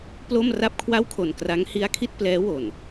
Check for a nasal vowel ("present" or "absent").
absent